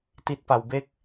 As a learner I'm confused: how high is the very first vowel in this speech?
high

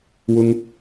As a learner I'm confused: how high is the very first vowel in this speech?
high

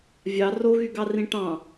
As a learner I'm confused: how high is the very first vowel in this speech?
low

